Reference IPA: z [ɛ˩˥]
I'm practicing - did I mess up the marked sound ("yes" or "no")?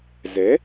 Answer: no